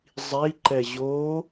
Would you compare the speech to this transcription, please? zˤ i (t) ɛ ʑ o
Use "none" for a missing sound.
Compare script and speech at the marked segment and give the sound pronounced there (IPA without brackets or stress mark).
ǃ